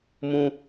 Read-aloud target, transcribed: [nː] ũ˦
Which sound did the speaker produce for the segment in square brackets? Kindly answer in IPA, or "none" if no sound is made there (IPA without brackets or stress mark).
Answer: m